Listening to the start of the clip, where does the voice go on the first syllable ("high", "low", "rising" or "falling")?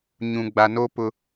low